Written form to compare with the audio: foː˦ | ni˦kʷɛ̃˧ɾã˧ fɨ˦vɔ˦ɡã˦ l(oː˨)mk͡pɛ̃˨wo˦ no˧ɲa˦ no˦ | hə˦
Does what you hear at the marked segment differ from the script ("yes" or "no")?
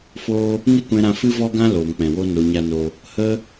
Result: no